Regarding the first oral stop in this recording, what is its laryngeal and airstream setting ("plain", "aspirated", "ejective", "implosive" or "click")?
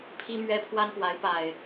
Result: aspirated